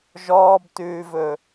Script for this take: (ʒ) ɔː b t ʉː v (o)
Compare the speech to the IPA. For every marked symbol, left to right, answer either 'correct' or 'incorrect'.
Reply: correct, incorrect

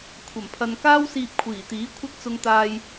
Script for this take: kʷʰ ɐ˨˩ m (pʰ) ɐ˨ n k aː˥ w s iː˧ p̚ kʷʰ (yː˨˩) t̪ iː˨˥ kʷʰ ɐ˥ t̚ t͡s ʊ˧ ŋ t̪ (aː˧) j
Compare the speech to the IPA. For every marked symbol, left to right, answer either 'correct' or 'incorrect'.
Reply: correct, incorrect, correct

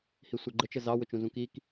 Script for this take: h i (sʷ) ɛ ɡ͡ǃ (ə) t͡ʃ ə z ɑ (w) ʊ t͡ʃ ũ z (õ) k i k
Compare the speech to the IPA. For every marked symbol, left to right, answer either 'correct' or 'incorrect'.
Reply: correct, correct, correct, incorrect

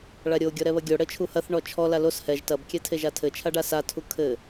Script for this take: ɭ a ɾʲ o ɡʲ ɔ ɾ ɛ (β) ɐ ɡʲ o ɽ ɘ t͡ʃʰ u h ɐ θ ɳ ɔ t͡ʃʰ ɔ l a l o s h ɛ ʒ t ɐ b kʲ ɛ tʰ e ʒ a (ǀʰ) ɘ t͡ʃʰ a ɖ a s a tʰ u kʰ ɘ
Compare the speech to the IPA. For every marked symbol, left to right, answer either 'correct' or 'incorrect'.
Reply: correct, incorrect

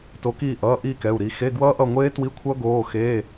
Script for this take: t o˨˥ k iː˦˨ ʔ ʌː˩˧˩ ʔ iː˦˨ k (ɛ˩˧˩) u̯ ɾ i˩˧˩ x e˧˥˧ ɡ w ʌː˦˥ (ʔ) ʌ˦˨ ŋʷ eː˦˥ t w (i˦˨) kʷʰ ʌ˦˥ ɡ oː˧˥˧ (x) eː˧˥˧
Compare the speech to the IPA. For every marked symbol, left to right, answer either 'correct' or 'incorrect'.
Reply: correct, correct, incorrect, correct

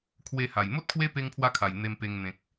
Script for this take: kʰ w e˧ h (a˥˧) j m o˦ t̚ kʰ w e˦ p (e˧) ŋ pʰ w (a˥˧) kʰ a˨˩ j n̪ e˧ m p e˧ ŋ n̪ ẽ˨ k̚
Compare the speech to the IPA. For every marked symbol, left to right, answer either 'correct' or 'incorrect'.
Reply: incorrect, correct, incorrect

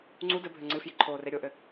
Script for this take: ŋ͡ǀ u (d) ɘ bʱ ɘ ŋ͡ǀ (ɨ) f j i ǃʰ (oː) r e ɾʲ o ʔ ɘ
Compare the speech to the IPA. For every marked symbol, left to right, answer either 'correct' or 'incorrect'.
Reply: correct, correct, correct

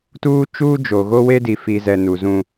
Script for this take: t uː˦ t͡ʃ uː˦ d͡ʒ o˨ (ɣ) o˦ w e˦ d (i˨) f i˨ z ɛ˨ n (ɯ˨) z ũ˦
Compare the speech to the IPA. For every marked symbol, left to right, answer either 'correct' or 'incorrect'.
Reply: correct, correct, incorrect

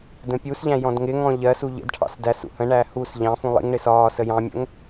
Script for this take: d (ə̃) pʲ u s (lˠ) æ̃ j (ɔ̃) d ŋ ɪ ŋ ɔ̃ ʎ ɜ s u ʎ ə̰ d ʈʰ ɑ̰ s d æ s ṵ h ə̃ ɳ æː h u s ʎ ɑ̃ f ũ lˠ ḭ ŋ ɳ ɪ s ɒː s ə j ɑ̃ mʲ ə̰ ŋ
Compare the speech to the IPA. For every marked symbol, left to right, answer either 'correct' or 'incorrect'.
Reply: correct, incorrect, correct

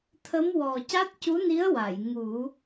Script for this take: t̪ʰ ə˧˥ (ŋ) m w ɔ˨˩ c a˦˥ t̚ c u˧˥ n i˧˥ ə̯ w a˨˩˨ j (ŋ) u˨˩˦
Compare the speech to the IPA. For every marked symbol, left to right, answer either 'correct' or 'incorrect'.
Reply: incorrect, correct

